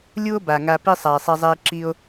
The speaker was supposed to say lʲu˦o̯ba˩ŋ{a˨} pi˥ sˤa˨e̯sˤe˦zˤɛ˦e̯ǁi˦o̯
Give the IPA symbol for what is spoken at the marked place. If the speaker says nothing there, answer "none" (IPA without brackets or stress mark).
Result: a˨